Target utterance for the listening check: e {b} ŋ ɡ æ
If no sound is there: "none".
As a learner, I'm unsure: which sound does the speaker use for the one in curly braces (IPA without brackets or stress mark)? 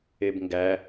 b